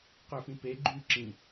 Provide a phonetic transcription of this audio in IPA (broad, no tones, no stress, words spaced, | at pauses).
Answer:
qøfĩpe ɡ͡ǃy ǁĩ